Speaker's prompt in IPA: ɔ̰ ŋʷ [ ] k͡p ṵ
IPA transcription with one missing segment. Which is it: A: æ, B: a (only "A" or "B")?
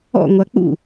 B